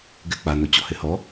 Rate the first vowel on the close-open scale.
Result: mid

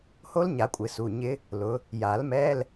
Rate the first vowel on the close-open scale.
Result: mid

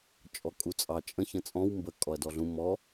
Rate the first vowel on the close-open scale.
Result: mid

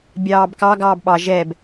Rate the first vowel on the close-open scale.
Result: open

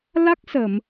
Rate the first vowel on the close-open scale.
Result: open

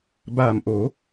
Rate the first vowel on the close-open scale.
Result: open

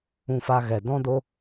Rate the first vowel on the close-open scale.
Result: close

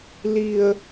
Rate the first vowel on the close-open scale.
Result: close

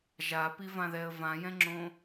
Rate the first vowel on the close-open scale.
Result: open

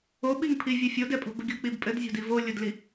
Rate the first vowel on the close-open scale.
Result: mid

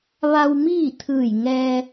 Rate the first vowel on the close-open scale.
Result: open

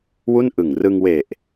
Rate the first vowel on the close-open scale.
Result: close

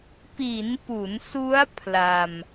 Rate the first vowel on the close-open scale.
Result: close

